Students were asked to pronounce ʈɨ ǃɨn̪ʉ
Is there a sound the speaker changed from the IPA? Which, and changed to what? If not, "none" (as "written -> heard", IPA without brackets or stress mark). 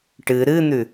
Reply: ǃ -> ɾ